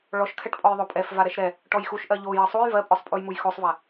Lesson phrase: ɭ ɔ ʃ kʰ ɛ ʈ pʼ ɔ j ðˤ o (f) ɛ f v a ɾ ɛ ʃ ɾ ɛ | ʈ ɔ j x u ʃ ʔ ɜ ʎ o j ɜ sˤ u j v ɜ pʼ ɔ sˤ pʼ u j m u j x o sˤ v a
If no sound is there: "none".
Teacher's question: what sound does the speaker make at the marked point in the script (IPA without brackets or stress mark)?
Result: pʼ